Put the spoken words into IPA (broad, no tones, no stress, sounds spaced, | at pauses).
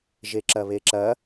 ʒ e ǁ ɐ β e ǁ ɐ